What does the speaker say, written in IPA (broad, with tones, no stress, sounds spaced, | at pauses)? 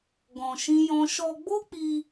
ɡ ɔ̃˧ ʃ ĩ˦ j ɔ̃˦ ʃ ɔ˧ ɡ͡b o˦ k͡p i˧